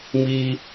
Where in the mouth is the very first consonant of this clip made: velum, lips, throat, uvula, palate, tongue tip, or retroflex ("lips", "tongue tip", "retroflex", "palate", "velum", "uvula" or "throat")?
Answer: lips